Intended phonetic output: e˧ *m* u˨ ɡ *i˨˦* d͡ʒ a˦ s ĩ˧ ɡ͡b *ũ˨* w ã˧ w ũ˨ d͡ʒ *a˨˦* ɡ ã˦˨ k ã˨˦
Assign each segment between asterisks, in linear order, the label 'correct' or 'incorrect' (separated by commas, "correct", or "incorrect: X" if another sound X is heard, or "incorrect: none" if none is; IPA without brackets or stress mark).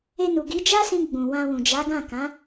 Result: incorrect: n, correct, correct, correct